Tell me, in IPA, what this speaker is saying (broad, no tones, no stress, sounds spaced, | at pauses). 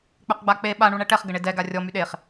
k͡p œ q ɡ͡b a k͡p e ɓ a ɳ u ɳ ɛ ʈ ɛ χ ɡ ə ɳ e d ɛ ɡ a rʲ ɔ m y ɗ e χ